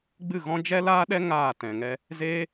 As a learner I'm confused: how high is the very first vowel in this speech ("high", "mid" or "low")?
high